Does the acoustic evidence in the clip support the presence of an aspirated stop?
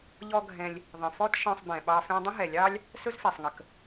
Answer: no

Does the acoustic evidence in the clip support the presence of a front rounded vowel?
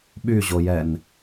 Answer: yes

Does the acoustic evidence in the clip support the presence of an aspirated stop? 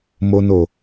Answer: no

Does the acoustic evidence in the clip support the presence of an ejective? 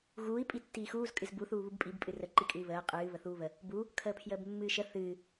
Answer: yes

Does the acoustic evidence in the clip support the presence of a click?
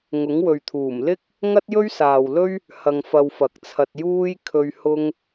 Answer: no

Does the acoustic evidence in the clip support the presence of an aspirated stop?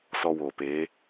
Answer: no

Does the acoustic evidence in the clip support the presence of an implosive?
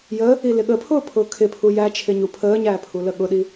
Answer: yes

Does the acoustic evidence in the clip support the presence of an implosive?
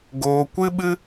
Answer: yes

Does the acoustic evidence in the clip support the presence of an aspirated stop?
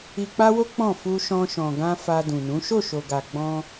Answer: no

